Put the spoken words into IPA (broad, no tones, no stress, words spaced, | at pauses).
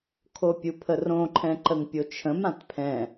kʰopʲupʰərõ ǃʰɛ̃ǃəŋpʲot͡ʃʰə̃m ãtpʰɛ̃